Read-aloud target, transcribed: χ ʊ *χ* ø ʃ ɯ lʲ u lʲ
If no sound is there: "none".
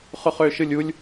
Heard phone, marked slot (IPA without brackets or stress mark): χ